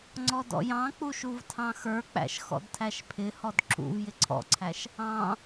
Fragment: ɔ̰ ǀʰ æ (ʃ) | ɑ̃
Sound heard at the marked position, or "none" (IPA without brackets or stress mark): ʃ